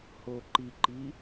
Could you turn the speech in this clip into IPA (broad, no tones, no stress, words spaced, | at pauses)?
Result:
ho ǃiǃi